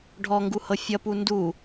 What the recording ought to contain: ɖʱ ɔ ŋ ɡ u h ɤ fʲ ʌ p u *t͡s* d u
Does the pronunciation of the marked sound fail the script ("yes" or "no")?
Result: yes